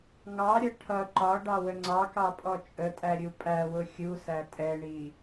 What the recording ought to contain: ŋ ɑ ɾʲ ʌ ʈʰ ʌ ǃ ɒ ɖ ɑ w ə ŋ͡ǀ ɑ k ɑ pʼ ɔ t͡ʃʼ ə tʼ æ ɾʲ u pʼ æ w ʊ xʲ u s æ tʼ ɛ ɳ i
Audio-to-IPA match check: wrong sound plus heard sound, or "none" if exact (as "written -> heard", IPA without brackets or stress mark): none